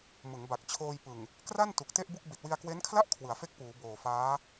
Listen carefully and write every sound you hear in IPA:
m ɯ˩˦ ŋ b a˨˩ k̚ t͡ɕʰ oː˧ j p ɯ˨˩ ŋ | k r a˥˩ n t u˨˩ k̚ t e˥˩ ʔ b u˥˩ k̚ b i˨˩ t̚ w i˧ a̯ k w e˦˥ n kʰ l a˥˩ ʔ kʰ w ɯ˩˦ a̯ f e˥˩ k̚ p uː˩˦ b oː˨˩ f aː˦˥

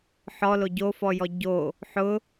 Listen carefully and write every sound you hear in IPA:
ħ ɔ l o ɟ o f ɔ j ɔ ɟ o | ħ ʊ

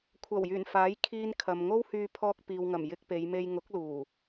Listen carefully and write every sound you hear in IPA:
kʷʰ ɐ˨˩ w j yː˨˩ n f aː˨˥ j kʰ iː˧ n kʰ ɐ˨ m ŋ o˥ w h yː˧ pʰ ɔː˧ k̚ p iː˨ w ŋ ɐ˨˩ m j ɪ˧ k̚ p e˨˧ j m e˧ j ŋ ʊ˨˥ k̚ l uː˨˩

